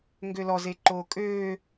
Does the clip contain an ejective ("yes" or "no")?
yes